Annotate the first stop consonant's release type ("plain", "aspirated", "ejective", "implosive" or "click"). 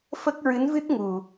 plain